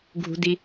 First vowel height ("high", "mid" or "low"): high